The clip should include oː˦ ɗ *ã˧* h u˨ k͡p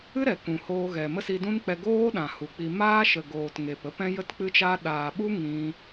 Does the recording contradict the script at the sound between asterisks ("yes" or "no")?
yes